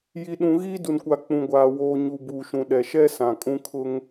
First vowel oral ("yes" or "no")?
yes